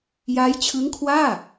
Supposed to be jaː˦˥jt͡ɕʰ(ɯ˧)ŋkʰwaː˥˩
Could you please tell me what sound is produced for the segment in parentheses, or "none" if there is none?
ɯ˦˥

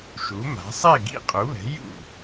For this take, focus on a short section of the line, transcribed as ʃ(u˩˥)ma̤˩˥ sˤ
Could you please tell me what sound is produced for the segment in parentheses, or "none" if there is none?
u˩˥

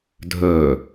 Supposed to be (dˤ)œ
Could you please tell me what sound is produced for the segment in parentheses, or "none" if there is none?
dʱ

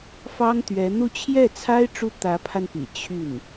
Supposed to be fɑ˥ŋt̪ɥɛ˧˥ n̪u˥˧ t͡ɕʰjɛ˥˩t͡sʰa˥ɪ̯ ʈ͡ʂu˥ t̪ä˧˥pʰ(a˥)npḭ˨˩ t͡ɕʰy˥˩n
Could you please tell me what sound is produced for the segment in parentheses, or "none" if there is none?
a˧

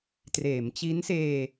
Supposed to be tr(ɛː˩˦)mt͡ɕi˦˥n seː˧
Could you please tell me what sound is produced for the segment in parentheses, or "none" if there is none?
eː˩˦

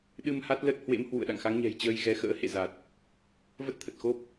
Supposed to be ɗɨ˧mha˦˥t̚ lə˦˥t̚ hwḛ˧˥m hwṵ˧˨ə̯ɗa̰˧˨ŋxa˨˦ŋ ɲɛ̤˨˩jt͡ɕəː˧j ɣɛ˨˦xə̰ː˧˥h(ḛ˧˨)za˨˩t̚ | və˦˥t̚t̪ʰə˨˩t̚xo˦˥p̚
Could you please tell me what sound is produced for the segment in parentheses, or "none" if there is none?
ḛ˧˨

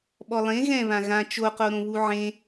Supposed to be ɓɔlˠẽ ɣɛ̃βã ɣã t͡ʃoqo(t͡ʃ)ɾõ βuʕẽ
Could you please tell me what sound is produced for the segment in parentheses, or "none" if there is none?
none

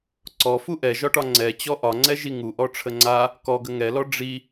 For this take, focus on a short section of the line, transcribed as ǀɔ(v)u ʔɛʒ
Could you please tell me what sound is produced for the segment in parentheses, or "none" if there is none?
f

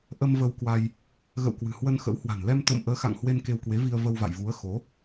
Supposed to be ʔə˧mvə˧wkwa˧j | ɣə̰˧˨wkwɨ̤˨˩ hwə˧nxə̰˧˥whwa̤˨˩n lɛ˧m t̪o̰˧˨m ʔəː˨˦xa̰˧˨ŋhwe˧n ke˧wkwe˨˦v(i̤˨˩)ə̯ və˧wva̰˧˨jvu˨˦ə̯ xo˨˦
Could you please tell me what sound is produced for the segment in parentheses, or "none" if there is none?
i˧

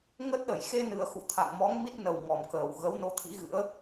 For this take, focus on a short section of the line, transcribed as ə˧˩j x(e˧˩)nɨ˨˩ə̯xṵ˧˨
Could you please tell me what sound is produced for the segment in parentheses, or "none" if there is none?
e˧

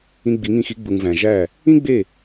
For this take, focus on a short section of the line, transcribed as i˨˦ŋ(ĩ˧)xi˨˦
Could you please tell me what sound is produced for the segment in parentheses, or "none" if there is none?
ĩ˧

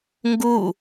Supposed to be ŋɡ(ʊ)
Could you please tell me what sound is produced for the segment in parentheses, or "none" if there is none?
u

